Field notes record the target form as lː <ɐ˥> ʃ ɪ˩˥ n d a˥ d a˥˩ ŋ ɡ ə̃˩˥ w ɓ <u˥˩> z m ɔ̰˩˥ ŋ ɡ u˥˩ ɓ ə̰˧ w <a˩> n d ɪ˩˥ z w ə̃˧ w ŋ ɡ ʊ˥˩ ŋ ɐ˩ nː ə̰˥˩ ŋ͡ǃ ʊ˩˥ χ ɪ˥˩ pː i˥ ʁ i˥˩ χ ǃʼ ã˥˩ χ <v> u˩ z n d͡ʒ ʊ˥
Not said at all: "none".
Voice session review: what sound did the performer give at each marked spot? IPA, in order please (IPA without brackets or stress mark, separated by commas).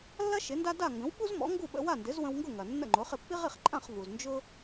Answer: ɐ˥, u˥, a˥˩, v